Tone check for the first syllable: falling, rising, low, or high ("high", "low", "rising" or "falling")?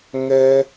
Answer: high